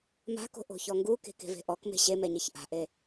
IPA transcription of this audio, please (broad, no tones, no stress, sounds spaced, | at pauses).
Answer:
m a̤ k o̤ ʔ o̤ ç ɔ ŋ ɡ u k e̤ k e̤ v e̤ ʔ ɔ k m e̤ ɕ e m ɛ ɲ e ç ʔ a̤ ʔ e